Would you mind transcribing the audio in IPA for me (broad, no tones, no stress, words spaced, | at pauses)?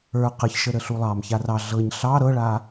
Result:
ə˞ qəçʃə ɾəɬulˠɑmça rɑ ɮɤɲ ɬɑ ɾɤɭa